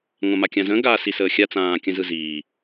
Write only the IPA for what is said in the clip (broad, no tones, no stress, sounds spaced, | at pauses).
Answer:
ŋʷ ã m a kʲ ã z ə̃ː ɡ aː s i s əː xʲ a t͡s ãː kʲ ə̃ z ɯ z iː